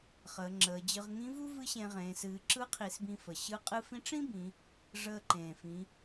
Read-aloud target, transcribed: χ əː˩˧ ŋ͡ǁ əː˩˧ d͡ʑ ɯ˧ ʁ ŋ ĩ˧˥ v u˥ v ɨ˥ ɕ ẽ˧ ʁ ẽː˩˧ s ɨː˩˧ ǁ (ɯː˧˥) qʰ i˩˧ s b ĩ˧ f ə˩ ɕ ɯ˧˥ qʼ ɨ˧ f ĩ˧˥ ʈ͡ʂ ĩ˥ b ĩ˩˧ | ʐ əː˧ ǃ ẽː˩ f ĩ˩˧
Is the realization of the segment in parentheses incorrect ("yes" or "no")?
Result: yes